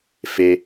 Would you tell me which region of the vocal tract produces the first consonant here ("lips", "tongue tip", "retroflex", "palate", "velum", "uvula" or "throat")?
lips